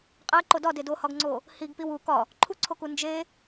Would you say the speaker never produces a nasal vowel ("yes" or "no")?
yes